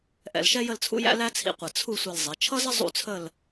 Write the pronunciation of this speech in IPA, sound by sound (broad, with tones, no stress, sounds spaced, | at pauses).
ʔ ɛ̰˧ l ʃ ɛ˥ j ə˥˧ l t͡sʰ ṵ˥ j æ̰˥ l æ˥ t͡sʰ ḭ˧ qʷ ə˧˩ t͡sʰ u˥˧ sʷ ɛ˧ l zˤ i˩˧ t͡ʃʰ ʌ˥ z ə˥ zˤ ṵ˥˧ t͡sʰ ə˥˧ l